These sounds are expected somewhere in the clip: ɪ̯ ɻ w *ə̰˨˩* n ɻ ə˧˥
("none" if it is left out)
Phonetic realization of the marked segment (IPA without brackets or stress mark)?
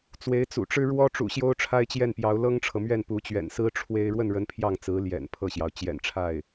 ə˥˩